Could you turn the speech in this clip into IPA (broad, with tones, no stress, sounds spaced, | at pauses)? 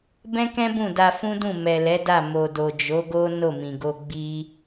b ɛ̃˦ k ɛ̃˦ b ũ˦˨ d a˧ f ũ˦ d ũ˦˨ m ɛ˨ l ɛ˨˦ d a˦˨ m o˨ d o˨ d͡ʒ o˨˦ ɡ o˦ n o˦˨ m ĩ˨ ɡ o˧ ɡ͡b i˦